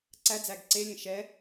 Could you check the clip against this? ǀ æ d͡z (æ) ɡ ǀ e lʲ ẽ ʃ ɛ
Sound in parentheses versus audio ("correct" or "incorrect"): correct